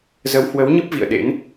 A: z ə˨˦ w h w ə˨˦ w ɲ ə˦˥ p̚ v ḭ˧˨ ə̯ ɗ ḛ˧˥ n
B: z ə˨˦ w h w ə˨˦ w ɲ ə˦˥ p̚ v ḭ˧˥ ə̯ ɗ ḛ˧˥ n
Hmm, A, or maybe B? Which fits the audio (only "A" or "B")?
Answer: A